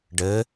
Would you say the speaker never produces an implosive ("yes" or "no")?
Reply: yes